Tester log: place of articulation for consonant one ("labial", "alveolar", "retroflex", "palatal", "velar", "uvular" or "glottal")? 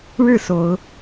retroflex